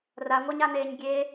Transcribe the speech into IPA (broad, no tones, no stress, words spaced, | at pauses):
raŋʷæɲaneːɲ ɡʲe